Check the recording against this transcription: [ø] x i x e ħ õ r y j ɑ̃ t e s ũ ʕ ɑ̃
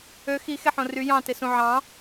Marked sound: correct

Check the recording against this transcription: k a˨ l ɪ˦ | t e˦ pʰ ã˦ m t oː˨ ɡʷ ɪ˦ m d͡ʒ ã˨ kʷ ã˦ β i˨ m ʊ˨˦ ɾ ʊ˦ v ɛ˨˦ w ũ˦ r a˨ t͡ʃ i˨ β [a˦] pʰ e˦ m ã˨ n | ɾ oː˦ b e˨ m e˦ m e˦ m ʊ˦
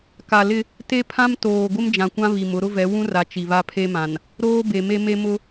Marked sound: correct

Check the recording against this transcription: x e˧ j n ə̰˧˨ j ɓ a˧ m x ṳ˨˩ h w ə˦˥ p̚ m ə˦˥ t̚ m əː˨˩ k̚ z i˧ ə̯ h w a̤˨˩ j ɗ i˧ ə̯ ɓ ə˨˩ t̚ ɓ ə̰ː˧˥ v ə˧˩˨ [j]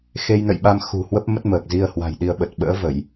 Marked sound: correct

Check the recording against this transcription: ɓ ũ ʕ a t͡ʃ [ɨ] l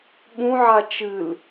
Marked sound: correct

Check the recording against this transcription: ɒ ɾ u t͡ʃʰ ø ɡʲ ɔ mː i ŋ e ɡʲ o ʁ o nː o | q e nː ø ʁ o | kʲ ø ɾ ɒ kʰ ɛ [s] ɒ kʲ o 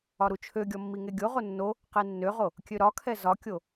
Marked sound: incorrect: z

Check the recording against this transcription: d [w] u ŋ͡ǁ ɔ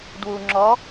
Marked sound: correct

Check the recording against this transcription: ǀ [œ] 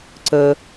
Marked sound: incorrect: ə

